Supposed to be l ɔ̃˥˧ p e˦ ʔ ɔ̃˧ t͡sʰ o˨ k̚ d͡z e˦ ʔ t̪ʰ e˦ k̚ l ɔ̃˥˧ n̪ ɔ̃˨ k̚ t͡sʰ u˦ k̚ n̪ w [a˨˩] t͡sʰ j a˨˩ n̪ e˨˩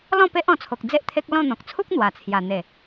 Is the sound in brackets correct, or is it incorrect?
correct